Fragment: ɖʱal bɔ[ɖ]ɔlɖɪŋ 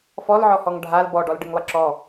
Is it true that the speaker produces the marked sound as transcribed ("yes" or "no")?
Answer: yes